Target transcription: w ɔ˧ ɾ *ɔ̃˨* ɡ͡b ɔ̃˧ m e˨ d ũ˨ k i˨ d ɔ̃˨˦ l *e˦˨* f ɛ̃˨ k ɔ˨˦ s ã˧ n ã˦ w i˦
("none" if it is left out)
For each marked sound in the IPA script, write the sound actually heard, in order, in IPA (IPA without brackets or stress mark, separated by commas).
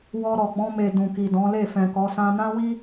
ɔ˨, e˦˨